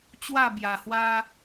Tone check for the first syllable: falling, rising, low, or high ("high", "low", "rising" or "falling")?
falling